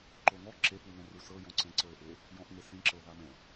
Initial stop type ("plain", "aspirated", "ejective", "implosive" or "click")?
click